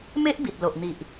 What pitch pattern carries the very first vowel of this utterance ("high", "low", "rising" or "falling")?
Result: high